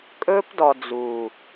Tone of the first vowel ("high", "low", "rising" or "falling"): high